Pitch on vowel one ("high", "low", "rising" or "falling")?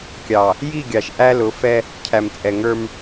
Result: low